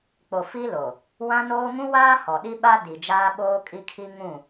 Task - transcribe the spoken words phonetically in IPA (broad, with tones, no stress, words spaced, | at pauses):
k͡po˨fi˦ lo˨ | wã˦noː˦ ŋũ˦waː˦ hɔ˨ɗi˦ɓa˦ di˨ d͡ʒaː˦ɓoː˦kʼi˦kʰi˦ ŋũ˦˨